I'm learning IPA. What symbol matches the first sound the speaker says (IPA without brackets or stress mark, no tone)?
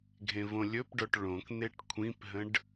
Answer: ɡʱ